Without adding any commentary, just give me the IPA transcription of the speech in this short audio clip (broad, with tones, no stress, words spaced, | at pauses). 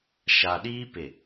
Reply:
ʃa˨ɗiː˦pɪ˨